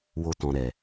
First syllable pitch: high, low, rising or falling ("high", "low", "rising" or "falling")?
low